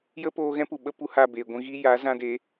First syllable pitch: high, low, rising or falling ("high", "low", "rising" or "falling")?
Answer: high